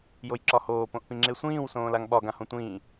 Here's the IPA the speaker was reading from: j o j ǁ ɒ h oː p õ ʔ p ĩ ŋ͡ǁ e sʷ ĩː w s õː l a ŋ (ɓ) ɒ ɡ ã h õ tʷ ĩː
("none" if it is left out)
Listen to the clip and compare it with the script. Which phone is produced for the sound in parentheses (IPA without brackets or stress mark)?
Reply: ɓ